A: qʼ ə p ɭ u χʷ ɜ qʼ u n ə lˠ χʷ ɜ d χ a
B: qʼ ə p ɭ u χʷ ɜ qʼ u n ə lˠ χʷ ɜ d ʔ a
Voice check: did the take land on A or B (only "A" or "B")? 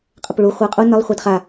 A